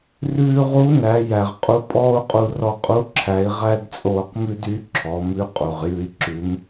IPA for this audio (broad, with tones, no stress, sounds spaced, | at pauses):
r ʉː˧ ʁ u˧˥ n æ˩˧ j æ˩ ʁ qʼ u˧˥ pʼ ɔː˥ u̯ qʼ u˧ r ɔ˧ qʼ u˧˥ ǁʰ æ˩˧ i̯ ʁ æ˥ d t͡sʼ oː˧ q m ʉ˥ d y˧˥ ǁʰ ɔ˩˧ m ʉ˧˥ qʼ u˩ ʁ j ʉ˧ i̯ ǁ ʉ˩˧ m